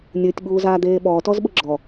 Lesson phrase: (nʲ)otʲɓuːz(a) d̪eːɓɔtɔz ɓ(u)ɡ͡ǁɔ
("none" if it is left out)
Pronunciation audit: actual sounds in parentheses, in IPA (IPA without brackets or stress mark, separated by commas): nʲ, aː, ʊ